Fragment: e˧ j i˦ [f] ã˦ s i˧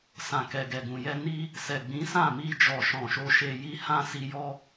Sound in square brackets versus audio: incorrect: h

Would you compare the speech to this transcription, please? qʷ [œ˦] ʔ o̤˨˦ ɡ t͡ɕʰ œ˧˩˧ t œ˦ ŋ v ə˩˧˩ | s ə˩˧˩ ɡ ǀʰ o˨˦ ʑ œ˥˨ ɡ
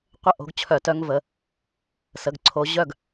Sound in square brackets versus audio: incorrect: ə˦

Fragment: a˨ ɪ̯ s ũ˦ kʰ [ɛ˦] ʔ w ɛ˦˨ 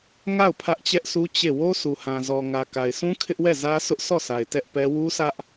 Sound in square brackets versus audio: incorrect: ɪ˦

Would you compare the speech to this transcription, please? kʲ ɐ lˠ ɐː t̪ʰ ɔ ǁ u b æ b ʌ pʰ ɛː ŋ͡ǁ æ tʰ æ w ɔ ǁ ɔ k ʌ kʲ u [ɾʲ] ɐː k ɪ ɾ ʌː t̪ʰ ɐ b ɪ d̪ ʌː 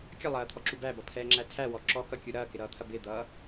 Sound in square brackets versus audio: incorrect: ɾ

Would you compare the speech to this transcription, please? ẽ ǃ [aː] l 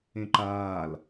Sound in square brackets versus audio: correct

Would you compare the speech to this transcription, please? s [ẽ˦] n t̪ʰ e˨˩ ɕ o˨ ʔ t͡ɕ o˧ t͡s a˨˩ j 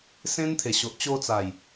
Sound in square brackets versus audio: correct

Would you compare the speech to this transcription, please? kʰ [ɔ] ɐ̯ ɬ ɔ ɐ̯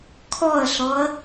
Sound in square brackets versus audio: correct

